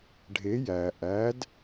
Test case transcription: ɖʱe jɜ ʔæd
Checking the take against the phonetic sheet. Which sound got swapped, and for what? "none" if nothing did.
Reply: ɜ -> æ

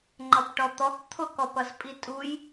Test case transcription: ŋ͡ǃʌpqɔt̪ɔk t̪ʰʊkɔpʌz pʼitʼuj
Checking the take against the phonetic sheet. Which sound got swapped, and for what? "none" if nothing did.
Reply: q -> ʈ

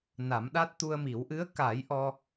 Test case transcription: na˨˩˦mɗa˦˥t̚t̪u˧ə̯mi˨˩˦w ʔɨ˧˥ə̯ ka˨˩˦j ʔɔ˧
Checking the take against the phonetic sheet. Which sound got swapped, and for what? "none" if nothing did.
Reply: none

